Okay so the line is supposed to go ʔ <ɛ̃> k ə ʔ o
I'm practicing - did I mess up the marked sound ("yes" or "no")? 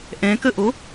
no